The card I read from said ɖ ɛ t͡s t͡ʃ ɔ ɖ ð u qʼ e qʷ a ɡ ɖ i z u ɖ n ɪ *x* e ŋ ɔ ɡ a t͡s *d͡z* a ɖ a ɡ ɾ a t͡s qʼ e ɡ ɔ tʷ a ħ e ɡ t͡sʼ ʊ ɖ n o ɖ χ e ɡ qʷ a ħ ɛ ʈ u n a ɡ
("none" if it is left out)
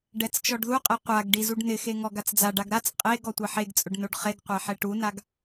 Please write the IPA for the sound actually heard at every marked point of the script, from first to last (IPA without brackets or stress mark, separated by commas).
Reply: x, d͡z